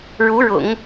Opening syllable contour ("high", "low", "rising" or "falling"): rising